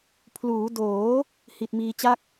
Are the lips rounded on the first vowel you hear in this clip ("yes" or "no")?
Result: yes